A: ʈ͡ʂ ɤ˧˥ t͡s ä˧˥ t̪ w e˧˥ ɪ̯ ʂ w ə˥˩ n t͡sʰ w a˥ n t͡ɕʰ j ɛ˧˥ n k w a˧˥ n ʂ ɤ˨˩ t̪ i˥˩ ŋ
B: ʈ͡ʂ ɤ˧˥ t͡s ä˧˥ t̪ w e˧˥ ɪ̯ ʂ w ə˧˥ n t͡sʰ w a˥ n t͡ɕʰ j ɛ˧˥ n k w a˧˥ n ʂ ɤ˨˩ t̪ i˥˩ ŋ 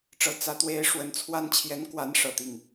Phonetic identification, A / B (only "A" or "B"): B